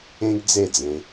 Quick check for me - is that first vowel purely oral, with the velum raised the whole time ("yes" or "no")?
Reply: no